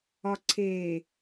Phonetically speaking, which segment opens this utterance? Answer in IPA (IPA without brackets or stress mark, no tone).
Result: ɒ